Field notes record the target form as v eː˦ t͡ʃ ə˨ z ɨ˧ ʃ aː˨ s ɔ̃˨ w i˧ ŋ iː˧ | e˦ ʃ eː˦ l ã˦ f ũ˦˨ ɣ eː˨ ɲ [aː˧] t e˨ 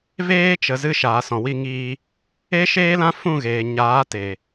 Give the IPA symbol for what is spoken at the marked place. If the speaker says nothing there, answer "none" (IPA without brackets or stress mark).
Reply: aː˨˦